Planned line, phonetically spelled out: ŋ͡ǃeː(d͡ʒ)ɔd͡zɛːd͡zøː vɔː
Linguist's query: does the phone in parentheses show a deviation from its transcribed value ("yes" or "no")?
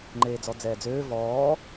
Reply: yes